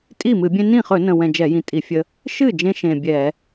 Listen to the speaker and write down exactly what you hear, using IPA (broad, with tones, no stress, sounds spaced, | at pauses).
tʼ i˥˩ m ɨ˧˩˧ bʲ ẽ˦ n ĩ˥˩ χ ɵ˧˩˧ n ə̃˨˩ w ɛ̃˨˩ d͡ʒ ɛ˧˩˧ j ĩ˨˩ tʼ i˧˩˧ fʲ ə˦ | ʃ ɨ˥˩ d͡ʒ ẽ˦ ʃ ẽ˨˩ bʲ ɛ˧˩˧